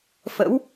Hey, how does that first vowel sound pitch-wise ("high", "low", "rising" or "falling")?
rising